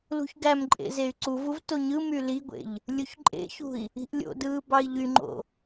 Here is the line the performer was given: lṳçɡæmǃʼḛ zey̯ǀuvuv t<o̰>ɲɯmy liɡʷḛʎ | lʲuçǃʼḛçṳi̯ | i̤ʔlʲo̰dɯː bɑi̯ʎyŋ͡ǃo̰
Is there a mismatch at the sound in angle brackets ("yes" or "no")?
yes